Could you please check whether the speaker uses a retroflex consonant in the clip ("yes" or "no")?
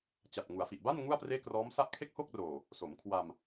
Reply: no